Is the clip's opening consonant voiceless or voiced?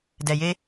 voiced